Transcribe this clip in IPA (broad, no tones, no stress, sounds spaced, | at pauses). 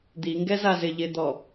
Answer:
d̪ i ŋ ɡ ɛ z a z ɪ ʎ ɪ d̪ ɔ